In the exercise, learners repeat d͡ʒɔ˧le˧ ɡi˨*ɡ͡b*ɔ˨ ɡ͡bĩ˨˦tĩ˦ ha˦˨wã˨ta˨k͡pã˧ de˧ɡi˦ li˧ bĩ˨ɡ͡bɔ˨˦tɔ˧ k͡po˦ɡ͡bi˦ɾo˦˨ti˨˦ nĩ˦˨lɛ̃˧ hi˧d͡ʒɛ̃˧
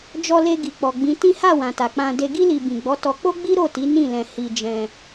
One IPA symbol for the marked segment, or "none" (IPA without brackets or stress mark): k͡p